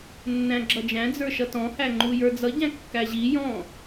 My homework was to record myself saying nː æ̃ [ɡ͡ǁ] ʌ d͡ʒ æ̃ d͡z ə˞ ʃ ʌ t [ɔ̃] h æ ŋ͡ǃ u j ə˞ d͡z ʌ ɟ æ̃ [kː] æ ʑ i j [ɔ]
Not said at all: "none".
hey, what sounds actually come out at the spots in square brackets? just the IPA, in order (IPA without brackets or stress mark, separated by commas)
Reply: ɡ͡ǁ, ɔ̃, kː, ɔ̃